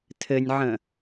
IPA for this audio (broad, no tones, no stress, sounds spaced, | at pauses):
tʰ ɘ nʲ ʕ ə̃